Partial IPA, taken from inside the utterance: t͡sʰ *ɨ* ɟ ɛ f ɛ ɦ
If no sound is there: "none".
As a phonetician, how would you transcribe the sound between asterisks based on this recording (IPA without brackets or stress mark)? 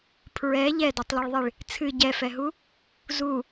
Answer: ɨ